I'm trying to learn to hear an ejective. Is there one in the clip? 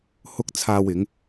no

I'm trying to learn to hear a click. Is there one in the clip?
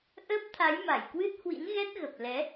no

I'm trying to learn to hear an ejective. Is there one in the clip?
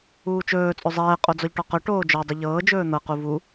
yes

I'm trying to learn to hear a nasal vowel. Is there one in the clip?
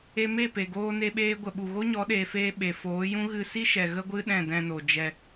yes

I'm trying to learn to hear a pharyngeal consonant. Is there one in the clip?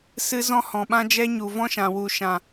no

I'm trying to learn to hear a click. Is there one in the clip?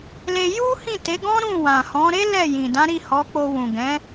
no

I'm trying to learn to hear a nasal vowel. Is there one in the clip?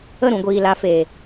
yes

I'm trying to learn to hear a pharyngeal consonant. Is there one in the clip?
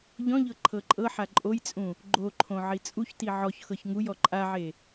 yes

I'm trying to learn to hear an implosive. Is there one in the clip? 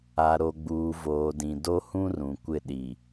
yes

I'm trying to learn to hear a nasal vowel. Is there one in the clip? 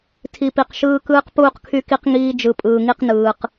no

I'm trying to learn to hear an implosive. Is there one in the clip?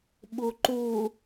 yes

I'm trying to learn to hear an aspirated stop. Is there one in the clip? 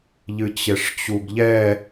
no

